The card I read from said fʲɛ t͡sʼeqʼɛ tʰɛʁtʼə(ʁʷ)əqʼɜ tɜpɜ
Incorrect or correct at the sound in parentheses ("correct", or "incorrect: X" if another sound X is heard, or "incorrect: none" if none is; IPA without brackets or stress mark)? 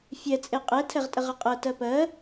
incorrect: ʁ